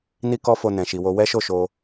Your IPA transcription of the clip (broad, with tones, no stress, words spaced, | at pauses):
ni˦kɔ˦fo˧ nɛ̃˨ʃi˨wo˧ wɛ˦ʃo˦˨ʃo˧